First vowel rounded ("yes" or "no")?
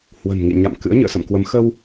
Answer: no